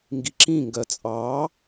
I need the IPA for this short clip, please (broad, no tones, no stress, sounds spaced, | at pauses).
ŋ ɡ i ǁ ĩ ŋ ɡ ɜ t͡sʼ ɑː